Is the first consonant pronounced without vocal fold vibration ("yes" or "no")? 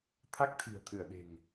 yes